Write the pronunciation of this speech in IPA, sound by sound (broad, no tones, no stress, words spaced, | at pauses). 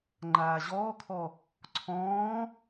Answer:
ŋ͡ǃaːʑɔːkʰɔ | ǀʰɔ̃ː